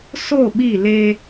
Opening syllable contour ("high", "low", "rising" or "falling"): falling